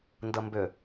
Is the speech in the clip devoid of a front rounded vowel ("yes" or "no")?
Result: no